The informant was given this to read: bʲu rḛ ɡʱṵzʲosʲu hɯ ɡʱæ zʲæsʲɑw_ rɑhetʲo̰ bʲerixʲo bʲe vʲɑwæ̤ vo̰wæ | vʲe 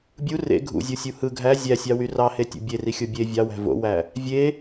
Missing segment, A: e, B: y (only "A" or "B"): B